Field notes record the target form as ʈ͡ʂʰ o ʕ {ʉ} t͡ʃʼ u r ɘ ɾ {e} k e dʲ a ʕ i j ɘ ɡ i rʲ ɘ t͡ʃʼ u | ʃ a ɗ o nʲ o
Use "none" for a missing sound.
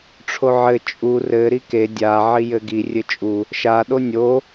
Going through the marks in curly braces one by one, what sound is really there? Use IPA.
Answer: ɘ, i

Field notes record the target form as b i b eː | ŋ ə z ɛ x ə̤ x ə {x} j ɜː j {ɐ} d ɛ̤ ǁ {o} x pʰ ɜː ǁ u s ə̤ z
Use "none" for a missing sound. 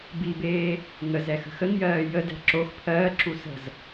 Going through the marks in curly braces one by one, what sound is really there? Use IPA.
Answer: ŋ, ə, o

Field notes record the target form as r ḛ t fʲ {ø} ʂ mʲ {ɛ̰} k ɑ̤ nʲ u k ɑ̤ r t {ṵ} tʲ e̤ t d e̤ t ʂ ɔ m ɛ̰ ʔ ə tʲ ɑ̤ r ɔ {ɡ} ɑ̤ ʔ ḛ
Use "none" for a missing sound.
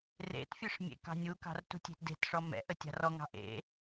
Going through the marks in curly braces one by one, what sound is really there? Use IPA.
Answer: ø, ḛ, ṳ, ŋ

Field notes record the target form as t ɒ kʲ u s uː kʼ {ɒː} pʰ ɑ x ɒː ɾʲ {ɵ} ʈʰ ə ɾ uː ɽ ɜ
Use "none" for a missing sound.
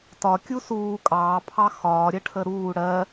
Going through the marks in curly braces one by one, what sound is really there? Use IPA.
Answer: ɑː, ə

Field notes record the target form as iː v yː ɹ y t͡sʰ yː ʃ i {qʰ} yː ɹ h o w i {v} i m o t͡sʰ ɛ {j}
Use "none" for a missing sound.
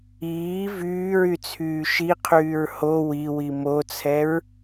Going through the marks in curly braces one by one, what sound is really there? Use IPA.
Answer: qʰ, w, ɹ

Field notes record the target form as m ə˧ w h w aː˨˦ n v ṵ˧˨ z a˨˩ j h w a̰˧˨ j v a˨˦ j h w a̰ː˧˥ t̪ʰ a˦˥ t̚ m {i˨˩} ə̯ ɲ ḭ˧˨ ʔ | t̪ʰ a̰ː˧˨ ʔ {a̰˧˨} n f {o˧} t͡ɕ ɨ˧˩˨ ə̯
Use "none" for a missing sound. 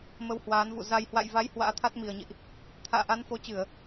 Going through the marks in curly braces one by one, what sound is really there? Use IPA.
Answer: i˨˩, a˨˦, o˨˦

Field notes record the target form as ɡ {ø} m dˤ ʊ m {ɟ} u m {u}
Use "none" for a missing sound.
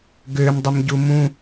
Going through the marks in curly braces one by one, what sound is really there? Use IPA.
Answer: ø, ɟ, ũ

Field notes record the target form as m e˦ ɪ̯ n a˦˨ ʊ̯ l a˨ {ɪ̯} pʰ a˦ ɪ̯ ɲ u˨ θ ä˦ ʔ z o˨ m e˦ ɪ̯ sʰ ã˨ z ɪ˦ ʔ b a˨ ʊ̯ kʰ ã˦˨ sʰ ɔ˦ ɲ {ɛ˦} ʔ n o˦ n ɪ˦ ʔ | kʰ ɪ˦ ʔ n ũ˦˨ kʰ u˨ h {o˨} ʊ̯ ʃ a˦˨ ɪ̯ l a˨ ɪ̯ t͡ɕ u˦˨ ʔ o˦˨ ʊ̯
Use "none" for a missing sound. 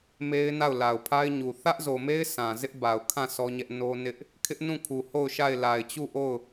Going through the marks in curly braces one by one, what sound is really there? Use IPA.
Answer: ʊ̯, ɛ˦, o˦˨

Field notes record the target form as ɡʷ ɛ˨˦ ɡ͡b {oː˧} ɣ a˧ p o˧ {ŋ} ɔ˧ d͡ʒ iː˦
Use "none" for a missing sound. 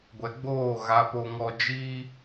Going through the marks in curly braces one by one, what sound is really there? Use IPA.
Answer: oː˦˨, ŋ

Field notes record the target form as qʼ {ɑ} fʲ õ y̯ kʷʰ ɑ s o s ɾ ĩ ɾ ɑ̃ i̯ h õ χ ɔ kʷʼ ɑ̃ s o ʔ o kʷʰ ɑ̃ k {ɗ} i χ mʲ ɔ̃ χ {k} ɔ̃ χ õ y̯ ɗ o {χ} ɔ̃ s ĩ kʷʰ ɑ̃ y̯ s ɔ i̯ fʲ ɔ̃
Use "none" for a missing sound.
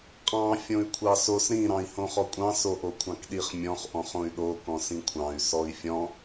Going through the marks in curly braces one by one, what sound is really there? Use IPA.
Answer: ɑ̃, ɗ, ʔ, k

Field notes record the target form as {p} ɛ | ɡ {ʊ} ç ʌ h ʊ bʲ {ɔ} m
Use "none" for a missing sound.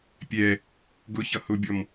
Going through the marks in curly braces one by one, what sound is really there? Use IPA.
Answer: pʲ, ʊ, ɔ

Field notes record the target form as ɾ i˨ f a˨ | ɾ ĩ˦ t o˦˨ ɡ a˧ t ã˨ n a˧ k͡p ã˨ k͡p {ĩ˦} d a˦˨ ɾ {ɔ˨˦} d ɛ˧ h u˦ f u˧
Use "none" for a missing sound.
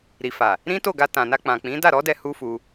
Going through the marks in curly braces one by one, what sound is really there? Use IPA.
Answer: ĩ˨˦, ɔ˨˦

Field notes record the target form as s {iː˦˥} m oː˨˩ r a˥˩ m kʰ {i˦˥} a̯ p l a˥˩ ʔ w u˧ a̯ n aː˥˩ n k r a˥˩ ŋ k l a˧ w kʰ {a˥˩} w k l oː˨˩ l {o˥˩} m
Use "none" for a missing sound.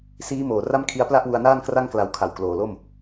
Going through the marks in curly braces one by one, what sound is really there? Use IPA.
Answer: iː˦˥, i˦˥, a˨˩, o˥˩

